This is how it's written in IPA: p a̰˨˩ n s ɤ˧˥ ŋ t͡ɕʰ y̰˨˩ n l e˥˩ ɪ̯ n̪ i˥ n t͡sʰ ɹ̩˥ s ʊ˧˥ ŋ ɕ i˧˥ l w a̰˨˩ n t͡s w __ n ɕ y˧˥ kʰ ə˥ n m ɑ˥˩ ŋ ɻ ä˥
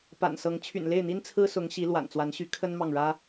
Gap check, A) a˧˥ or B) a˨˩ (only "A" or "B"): A